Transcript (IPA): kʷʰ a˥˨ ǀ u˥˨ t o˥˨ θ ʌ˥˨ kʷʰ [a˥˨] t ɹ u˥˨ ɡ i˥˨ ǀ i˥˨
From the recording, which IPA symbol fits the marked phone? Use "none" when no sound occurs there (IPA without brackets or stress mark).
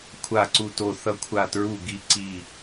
a˥˨